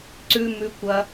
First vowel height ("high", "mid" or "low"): high